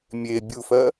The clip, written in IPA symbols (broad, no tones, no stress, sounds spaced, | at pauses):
mʲ e bʲ u f ɜ